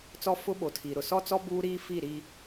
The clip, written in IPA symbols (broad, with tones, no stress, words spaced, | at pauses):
t͡sɔ˦fʊ˦ ɓo˨˦tʰi˨ ɾʊ˨sɔ˦t͡sɔ˦ buː˦ɾiː˦ fi˦˨ ɾi˦